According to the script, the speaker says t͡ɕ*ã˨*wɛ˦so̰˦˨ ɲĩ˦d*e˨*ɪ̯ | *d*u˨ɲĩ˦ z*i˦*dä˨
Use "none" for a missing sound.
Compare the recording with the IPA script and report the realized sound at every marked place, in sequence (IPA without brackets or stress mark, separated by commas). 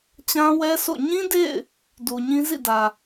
ã˦, ḛ˦˨, d, ḭ˦˨